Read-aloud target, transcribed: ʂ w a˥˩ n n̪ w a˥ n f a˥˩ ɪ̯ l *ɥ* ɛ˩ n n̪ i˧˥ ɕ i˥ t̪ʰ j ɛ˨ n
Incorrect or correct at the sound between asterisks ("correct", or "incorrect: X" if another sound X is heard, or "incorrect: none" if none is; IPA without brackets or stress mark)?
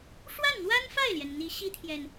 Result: incorrect: j